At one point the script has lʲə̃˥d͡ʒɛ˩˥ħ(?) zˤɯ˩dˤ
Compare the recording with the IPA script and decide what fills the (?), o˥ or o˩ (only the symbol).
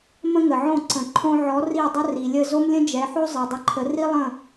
o˥